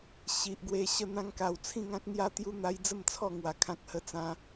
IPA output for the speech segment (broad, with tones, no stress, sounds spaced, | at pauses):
ɕ i˨ ʔ ɡ w e˧ ɕ ə˥˧ n̪ ã˦ ŋ k a˧ w t͡sʰ ĩ˥˧ ŋ ã˦ k̚ n̪ j a˦ t̪ j u˦ n̪ a˧ j d͡z ə˥˧ m t͡sʰ ɔ˥˧ ŋ w a˧ kʰ ã˦ k̚ h ə˥˧ t͡s ã˦